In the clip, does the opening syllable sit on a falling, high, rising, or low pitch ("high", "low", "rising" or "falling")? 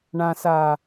low